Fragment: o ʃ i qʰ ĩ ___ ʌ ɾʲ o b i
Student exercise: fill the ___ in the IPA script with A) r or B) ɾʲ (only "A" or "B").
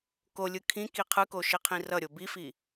A